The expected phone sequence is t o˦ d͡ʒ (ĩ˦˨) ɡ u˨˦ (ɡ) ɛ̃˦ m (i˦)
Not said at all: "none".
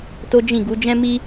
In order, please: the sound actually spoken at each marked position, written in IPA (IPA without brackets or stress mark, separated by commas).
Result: ĩ˦˨, d͡ʒ, i˦